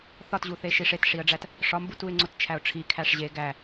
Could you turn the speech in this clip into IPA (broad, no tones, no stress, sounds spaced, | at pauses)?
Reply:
θ ɒ t ʑ u θ e ʃ i ʂ e t ʂ i ə̯ ɖ͡ʐ æ t | ʂ ɒ m b u t u ɪ̯ ŋ͡ǀ o t t͡ʃʰ æ ʊ̯ ʈ͡ʂʰ i kʰ æ ʂ ʑ e ɡ æ